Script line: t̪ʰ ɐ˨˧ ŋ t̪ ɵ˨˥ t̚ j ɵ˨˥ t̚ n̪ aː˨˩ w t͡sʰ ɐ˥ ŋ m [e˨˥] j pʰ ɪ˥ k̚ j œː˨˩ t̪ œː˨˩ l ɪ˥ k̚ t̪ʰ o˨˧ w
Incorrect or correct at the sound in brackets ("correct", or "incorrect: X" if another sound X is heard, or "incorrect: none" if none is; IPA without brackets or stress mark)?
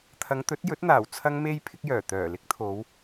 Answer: incorrect: e˥